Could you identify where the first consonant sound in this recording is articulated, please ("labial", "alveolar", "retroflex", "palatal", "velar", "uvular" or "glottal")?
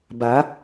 labial